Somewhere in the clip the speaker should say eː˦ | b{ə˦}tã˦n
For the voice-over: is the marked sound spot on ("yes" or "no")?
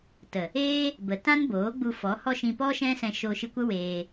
no